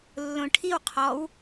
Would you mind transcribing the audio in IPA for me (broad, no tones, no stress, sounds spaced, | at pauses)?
lː õ ʈʰ i w qʰ ɔ w